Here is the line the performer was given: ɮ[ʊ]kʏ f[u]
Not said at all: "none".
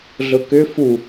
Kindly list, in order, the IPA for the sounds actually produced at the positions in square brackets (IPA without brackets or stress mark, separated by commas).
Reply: ʊ, u